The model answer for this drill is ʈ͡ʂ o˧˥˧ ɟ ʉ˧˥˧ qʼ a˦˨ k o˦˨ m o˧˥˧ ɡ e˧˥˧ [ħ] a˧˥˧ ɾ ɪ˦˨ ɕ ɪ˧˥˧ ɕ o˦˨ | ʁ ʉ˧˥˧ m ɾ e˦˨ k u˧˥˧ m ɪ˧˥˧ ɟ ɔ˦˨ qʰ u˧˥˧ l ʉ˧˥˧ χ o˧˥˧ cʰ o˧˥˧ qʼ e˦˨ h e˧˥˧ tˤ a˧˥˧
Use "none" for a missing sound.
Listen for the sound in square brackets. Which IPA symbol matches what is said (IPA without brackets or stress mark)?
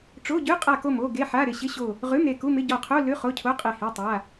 ħ